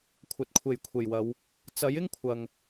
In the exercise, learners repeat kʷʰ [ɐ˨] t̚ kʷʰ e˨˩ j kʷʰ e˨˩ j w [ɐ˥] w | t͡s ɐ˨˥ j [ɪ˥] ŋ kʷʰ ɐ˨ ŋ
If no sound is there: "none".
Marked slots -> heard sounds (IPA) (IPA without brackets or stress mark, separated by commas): ɐ˨, ɐ˨˧, ɪ˥